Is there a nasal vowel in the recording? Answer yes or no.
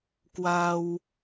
no